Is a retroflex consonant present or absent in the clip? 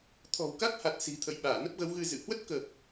absent